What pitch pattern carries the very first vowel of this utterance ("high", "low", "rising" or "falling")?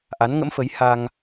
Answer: rising